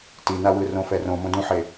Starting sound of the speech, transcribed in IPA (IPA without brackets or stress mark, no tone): t